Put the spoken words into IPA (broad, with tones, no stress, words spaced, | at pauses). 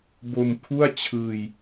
bo˧mpʰu˥˩a̯t͡ɕʰɯː˧j